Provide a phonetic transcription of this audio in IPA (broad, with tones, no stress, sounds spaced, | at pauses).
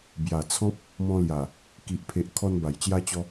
b j a˨˩ t͡sʰ ɔ̃˦ p̚ | m ɔ̃˧ l j a˨˩ | k i˨ ʔ pʰ e˨ ʔ kʰ ɔ˧ n b a˨˩ j t͡ɕ j a˧ t͡ɕ ɔ˧